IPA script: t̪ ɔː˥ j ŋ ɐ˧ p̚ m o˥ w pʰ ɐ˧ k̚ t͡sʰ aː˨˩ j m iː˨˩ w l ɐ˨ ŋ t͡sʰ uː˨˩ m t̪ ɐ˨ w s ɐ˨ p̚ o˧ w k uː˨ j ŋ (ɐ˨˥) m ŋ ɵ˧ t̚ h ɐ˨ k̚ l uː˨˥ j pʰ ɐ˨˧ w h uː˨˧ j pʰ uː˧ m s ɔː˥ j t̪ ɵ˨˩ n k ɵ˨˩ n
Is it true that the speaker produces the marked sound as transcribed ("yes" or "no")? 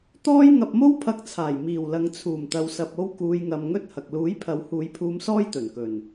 no